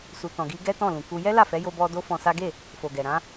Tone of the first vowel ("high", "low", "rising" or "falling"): low